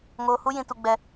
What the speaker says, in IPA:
ŋ oː˦ h u˦ j ĩ˧ t u˧ ɡ͡b ɛ˧

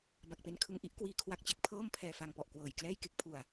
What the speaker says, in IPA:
b a˨˩ k̚ p e˦˥ n kʰ ɯ˧ ŋ ʔ i˦˥ ʔ k w iː˧ kʰ w a˦˥ k̚ t͡ɕ e˨˩ k̚ pʰ ɤː˥˩ m pʰ ɛː˧ f a˧ ŋ p ɔ˨˩ ʔ k w ɤː˨˩ j k l ɛː˥˩ j k e˦˥ k̚ pʰ u˨˩ a̯

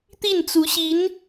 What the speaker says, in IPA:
t̪ i˥˩ n t͡s u˧˥ ɕ i˧˥ n

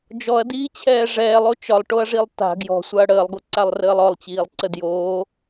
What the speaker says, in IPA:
d͡ʒ ɔ ɐ̯ d iː t͡ɕʰ ɛː ʐ ɛː lˠ o t͡ʃ ɒ lˠ ʈ o ɐ̯ ʐ i lˠ t a̤ ɡ j ɔ̤ sʷ a ɐ̯ ɽ əː lˠ ɡ o ǀ a lˠ r əː lˠ ɔ lˠ t͡ɕ iː lˠ ǀ ə d j oː

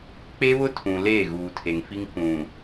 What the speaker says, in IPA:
k͡p e˦ β ʊ˦ tʰ ũ˨ l eː˦˨ ɣ uː˨ tʰ e˨ ŋ f i˦ ŋ k ũ˨

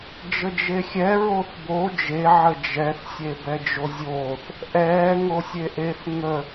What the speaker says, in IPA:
d͡ʒ ə d͡ʒ e xʲ ɛ ɹ o θ b o d͡ʒ e ʕ ə d͡ʒ ɛ θ sʲ e b ɛ d͡ʒ o zʲ oː θ | ʔ ɛː ŋ o sʲ e ʔ e θ ŋ ə

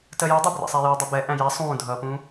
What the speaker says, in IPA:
t ɜ j u dˤ ʊ b r æ̰ sˤ æ j uː dˤ ʌ b ɛ ʔ æ̃ j æ sˤ ũː dʱ ʌː p ũː

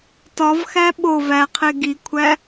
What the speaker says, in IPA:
t ɒ v x æ ɓ o v æ qʰ e ɡ i kʷʰ æ

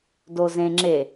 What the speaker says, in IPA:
d o z ẽ ŋ͡ǁ e

